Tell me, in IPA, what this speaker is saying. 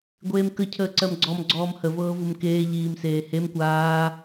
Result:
ɡʷeːmkə cʰəːǀɜmɡ͡ǀɔm ɡ͡ǀɔːmhə vɤːvumkeː ʎiːmseːhem kʷaː

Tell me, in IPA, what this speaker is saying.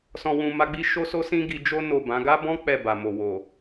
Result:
sɔ̃˨wũ˨ ma˧ɡ͡bi˦ʃo˦ so˧sĩ˧ ɡi˧d͡ʒo˦ no˦˨bã˨˦ ɡa˦bɔ̃˦ k͡pɛ˦˨ba˨ mo˨ wo˨

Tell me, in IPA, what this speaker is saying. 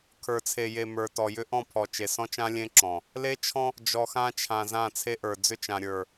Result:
kʰə˞˨t͡sʰe˨je˨ mə˞˨tɔ˨ jʏ˦ʔɔ̃˦˨pʰɔ˨ t͡ʃe˨sɔ̃˦t͡ʃã˦ lʲẽ˦ǁɔ̃˨ | le˦t͡ʃʰɔ̃˦ | d͡ʒɔ˨xã˦t͡ʃʰã˨ zã˦˨t͡sʰe˦ʔə˞˨ d͡zʏ˦t͡ʃã˨ ɾʲə˞˨

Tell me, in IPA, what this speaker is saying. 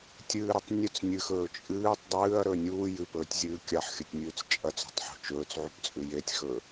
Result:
tʲɨːɾɵtˤ nʲɵt͡s nʲɨxɵː t͡ʃʼɨːtˤ dˤɨːɐ̯ɾɵ nʲuː jɨpɵːtʲzʲɨː kʲaħxʲɵtʲnʲʉːt͡s t͡ʃʼɐt͡so̤tˤħṳ t͡ʃɵːt͡sʕupt͡sʼʉ jetʲxɵ

